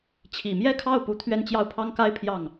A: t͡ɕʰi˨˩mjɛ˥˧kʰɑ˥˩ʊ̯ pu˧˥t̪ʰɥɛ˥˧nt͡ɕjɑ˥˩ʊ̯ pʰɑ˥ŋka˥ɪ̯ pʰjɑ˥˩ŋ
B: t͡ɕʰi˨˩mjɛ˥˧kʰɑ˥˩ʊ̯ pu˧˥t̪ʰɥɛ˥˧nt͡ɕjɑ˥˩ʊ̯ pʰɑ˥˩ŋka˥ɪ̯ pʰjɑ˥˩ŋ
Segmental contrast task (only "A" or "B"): A